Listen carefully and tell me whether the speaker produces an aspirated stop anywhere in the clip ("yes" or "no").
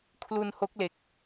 yes